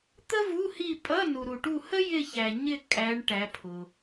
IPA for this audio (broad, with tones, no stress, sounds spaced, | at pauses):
t̪ ə˥ v u˧˥˧ h i˦˨ pʼ ʌ˧˥˧ n u˨ ɾ u˨ ʈ u˦˨ h ə˥ j ɪ˦˨ ç æ˨ ɲ ɪ˦˨ kʼ æ˨˦ ɳ ʈ æ˨˦ pʰ ʊ˨